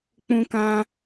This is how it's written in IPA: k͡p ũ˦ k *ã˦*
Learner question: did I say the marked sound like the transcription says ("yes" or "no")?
yes